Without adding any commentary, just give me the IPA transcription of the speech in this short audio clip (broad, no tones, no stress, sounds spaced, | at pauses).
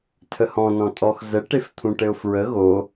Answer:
tʰ ə h ɔ̃ n ɔ̃ tʼ ɔ x z ə ʈ e f t̪ʰ ũ ʈ ɘ ʊ̯ f ɹ ə ɣ o